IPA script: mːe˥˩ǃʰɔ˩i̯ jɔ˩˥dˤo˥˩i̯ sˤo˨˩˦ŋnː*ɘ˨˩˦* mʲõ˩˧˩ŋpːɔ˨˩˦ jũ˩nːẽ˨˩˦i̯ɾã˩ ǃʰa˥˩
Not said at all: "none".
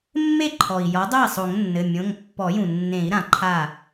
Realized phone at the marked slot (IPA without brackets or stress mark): ɘ˩˧˩